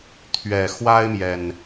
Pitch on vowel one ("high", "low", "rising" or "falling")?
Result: low